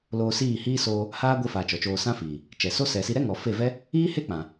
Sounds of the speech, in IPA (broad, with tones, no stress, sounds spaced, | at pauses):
l oː˧ s iː˦˨ h iː˦ s oː˧ | h aː˦ ɡʷ i˧ f aː˨ t͡ʃ ɔ˨ t͡ʃ oː˧ s ã˦ f iː˨ | t͡ʃ ɛ˨ s o˦ s ɛ˨ s i˧ ɾ ɛ˦ ŋ ɔ˨ f e˦˨ v ɛ˦ | iː˦ h e˦ k͡p ã˨